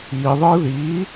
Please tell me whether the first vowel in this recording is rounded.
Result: no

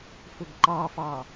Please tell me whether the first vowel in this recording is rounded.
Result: yes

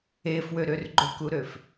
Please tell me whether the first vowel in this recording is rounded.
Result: no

